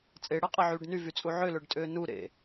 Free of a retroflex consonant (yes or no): no